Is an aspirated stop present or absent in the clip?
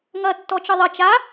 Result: absent